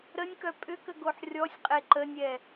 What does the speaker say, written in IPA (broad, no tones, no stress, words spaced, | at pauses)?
ɾənʲkœ pʼʏkəɡoħ rʲɔsʲqʼe ǃənʲɛ